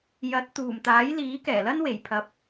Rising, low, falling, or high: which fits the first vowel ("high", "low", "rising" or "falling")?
rising